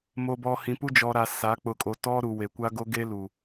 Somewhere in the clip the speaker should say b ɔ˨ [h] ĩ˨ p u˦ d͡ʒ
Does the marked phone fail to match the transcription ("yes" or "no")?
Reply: no